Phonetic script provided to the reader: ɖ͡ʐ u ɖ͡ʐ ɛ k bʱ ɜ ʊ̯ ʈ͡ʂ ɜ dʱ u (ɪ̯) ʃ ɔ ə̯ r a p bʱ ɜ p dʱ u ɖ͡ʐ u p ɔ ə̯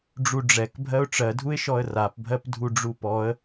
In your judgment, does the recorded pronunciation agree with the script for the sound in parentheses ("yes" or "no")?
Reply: yes